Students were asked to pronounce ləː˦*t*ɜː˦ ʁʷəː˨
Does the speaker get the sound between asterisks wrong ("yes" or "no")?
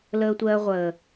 yes